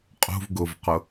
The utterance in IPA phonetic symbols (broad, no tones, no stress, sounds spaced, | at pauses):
qʼ ṳ v ɡ ʊ v q ʊ